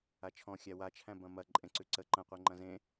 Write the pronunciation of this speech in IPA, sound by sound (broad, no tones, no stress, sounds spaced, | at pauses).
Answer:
a t͡ʃʰ ɔ̃ xʲ æ w a t͡ʃʰ æ̃ b ɐ̃ m ɐ ǃʼ ẽ ǀ ʉ ǀ ə ǃ ɐ̃ qʷ e ŋ͡ǃ ɐ̃ z ẽ